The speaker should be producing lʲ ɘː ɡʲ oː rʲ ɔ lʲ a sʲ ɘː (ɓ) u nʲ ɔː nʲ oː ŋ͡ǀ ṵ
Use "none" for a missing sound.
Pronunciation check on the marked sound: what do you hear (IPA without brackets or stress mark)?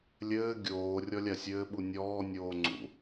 ɓ